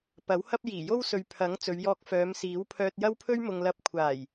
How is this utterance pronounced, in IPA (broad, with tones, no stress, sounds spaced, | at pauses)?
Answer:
p ɐ˨˥ w h ɐ˥ p̚ j iː˨˩ j o˥ w s ɵ˨ ɥ pʰ ɐ˨˥ ŋ t͡s ɵ˨˧ ɥ j ɔː˧ k̚ f œː˨˧ m s iː˨˥ w pʰ œː˧ t̚ j ɐ˥ w pʰ ɵ˥ ɥ m ʊ˨ ŋ l ɐ˧ p̚ kʷʰ aː˨˩ j